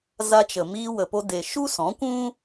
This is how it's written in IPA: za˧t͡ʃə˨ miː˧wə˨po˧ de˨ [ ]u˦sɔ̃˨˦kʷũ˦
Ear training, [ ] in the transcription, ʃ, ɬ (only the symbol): ʃ